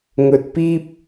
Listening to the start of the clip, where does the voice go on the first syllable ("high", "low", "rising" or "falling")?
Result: low